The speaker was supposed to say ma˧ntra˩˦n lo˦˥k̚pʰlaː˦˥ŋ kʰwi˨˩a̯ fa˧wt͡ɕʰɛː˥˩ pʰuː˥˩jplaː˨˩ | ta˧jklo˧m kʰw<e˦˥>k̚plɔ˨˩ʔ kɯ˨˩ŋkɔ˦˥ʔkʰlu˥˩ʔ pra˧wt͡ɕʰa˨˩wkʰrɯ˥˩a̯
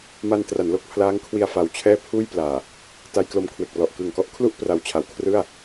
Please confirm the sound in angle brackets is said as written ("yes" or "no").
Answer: no